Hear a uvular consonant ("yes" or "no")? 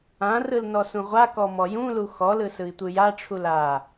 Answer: yes